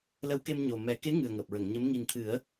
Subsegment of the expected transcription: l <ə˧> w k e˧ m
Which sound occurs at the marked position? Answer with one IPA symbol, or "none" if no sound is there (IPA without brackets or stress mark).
ə˧˥